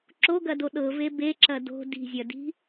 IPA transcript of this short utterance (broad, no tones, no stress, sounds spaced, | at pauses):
ǁ o ɡ ɐ d o ɗ ɤ v e b e ǁ ɐ d o̤ d i̤ zʲ ɐ d i̤